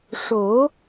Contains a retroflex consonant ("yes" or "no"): yes